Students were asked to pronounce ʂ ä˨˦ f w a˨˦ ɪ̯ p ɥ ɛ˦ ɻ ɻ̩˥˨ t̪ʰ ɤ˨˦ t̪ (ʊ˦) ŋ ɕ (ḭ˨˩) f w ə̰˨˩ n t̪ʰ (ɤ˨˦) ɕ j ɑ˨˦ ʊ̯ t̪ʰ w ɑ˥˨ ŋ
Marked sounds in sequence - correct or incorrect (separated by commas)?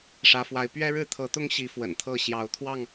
correct, incorrect, incorrect